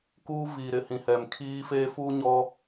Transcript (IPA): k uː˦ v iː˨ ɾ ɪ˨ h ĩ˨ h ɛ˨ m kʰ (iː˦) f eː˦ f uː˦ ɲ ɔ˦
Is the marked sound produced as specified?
yes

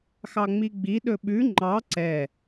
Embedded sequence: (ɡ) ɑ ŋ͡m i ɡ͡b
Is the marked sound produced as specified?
no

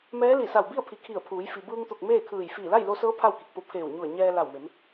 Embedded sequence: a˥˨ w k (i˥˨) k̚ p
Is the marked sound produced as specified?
no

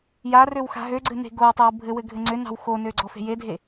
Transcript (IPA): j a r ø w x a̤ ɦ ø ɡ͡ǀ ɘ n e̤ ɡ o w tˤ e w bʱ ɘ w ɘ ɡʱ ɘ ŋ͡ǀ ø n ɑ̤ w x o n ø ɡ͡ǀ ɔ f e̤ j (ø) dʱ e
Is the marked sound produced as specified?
no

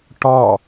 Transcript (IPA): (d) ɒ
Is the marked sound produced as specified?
no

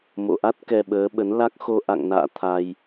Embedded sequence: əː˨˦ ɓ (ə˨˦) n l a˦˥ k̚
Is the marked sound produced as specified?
yes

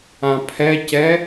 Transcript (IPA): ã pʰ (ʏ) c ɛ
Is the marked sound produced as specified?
no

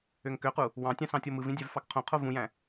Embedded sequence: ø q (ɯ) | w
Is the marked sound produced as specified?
no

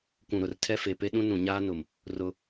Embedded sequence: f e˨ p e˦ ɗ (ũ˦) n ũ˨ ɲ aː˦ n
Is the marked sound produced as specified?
yes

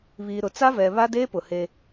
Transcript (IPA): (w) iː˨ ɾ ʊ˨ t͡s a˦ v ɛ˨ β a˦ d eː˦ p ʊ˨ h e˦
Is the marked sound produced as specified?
no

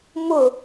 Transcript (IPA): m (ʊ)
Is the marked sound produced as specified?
yes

